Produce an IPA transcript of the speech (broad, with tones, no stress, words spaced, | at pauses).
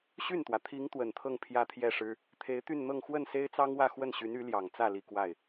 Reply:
ɕy˥˩nt̪wä˩ t̪ʰi˧˥ŋ t̪wə˨˩nt̪ʰɤ˥˧ŋ pʰjä˥˧t̪ʰjɛ˥˩ʂɻ̩˥ | t̪ʰe˧˥ɪ̯t̪y˥˧nn̪ɤ˥˧ŋ xwə˥˩nse˥ɪ̯t͡sɑ˥ŋwä˥˧ xwə˥˩nɕy˧˥ny˧˥ljɑ˨˩ŋ t͡sä˥˩li˨˩ kwa˥˩ɪ̯